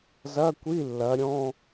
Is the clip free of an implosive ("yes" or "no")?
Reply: yes